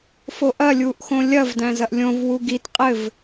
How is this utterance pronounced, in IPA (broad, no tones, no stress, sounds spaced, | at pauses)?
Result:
f o ʔ ɐ lʲ u ʔ x õ lʲ ɐ v d æ̃ z ɐ ʔ lʲ õ v w u ɡ i t qʼ ɘ v